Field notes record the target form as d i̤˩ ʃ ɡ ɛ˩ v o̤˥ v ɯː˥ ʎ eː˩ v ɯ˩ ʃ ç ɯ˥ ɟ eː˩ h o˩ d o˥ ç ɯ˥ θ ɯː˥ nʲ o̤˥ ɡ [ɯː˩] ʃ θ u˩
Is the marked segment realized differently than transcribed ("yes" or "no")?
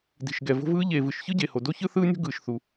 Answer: no